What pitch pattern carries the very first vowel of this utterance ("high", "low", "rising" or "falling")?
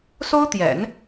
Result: high